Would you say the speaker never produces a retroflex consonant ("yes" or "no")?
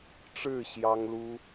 no